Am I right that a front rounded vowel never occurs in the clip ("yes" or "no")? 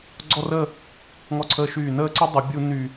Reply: no